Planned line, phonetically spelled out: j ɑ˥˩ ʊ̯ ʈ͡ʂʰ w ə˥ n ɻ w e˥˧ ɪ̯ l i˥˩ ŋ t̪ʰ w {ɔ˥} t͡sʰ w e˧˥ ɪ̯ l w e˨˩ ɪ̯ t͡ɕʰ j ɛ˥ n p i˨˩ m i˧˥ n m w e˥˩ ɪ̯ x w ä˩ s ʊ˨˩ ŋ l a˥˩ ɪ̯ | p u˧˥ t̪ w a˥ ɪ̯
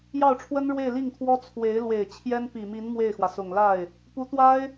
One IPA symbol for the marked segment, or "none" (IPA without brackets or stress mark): ɔ˥